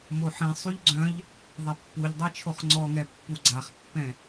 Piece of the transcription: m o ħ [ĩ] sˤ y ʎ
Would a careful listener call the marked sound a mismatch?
no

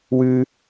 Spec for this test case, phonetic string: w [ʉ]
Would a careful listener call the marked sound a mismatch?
no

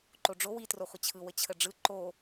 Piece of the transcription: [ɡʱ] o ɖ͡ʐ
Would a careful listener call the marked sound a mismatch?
yes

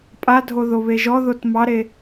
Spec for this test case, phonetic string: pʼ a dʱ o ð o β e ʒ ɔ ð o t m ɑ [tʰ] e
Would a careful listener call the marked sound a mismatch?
yes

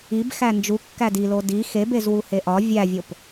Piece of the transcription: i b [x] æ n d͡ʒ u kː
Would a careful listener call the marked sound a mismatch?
no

